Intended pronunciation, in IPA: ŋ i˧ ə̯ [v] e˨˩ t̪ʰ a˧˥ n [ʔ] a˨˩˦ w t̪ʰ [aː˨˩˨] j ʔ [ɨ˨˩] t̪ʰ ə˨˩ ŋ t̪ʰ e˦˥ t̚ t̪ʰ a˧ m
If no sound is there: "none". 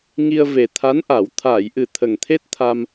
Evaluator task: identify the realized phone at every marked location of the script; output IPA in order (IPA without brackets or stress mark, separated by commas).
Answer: v, ʔ, aː˨˩˨, ɨ˨˩